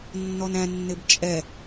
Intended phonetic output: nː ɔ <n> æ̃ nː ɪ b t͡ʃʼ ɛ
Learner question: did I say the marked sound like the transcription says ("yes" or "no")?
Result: yes